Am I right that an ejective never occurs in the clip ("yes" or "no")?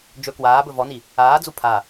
yes